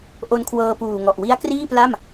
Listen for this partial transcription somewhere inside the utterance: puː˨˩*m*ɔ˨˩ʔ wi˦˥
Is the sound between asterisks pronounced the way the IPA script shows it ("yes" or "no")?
no